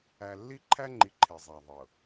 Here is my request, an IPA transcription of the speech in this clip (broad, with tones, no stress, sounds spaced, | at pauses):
æ˨ lː i˦ ǃʰ æ˦ ŋ͡ǃ i˨ ǃʰ e˨ zˤ a˨ ðˤ ɤ˨